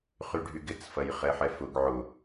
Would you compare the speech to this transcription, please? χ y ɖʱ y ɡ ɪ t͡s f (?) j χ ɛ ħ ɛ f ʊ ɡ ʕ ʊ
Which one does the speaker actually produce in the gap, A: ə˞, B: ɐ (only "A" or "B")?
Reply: B